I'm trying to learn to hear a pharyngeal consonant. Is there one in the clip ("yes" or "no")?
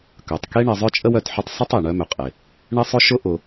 yes